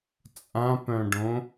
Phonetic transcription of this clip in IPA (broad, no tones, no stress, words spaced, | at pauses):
t͡sʼãpœ̃ɖõ